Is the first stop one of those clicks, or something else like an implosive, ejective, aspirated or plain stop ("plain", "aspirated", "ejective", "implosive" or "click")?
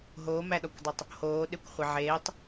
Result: implosive